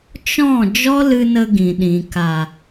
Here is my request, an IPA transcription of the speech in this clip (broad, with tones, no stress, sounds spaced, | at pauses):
t͡ʃ ɔ̃˦˨ d͡ʒ ɔ˦ l ɨ˧ n ə˧ ɡ ĩ˨ ɗ ĩ˨ k a˨